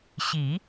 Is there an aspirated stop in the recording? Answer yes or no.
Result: no